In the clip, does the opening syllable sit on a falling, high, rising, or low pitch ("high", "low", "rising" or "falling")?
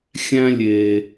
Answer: high